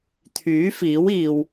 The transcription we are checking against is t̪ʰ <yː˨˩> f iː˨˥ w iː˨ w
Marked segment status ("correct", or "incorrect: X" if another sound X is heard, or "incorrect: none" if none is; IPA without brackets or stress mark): incorrect: yː˨˥